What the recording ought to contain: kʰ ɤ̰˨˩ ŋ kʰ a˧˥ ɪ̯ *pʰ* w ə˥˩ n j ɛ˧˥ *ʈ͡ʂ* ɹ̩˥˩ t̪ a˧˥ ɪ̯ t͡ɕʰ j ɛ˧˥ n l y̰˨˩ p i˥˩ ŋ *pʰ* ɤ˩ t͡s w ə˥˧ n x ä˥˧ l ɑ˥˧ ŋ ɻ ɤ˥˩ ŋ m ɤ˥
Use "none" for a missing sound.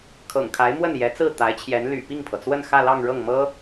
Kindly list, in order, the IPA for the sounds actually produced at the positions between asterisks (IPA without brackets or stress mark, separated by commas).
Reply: m, t͡s, pʰ